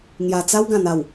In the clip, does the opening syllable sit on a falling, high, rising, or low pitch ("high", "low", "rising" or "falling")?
low